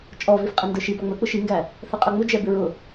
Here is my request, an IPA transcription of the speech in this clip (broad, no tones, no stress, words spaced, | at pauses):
t͡ʃʼɔvif qʼɛndə˞ʃi bɑŋ͡mə˞k͡pʊ ʃiŋɡæ | θɛqʼʌŋ͡mʊ d͡ʒɛbɪɹʊ